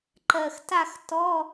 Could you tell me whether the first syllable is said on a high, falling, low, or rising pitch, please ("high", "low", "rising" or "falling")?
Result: low